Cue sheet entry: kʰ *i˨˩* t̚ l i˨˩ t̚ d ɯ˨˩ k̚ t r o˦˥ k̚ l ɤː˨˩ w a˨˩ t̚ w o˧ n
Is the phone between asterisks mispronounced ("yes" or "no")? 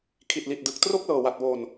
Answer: no